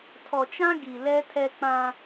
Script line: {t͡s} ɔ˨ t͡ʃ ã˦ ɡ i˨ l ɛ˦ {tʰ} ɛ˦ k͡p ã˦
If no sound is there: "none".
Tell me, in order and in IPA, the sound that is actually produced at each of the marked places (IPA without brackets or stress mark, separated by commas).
tʰ, tʰ